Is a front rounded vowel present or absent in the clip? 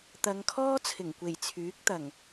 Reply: present